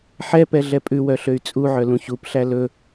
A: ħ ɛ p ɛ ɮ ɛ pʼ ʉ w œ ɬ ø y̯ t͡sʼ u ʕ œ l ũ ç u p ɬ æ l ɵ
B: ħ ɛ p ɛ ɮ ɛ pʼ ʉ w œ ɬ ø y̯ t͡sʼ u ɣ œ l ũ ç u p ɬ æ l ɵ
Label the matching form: A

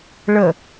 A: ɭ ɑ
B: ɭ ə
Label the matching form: B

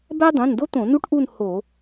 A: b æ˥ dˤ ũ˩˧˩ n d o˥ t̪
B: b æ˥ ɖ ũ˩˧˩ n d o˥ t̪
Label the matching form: A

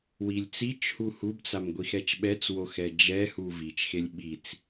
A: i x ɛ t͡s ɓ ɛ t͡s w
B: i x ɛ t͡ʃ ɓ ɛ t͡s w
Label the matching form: B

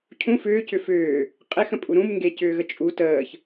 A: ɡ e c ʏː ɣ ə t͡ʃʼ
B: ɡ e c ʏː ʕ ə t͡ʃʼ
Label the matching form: A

